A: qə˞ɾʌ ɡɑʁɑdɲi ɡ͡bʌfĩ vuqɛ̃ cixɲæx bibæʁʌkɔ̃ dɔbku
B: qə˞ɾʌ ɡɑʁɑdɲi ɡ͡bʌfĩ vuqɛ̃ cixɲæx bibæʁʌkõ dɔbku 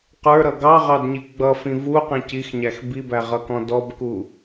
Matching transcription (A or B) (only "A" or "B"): A